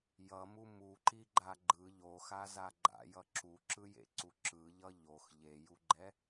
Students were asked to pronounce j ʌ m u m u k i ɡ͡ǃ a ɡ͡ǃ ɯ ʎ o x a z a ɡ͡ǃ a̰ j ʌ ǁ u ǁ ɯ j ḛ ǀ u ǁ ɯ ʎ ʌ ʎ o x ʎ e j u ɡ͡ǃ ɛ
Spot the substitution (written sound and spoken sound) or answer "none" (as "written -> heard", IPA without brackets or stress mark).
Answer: k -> ǃ